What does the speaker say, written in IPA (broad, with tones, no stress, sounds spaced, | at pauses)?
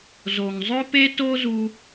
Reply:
z o˩ ŋ zˤ ø˥ p e˥ t o˥ z u˥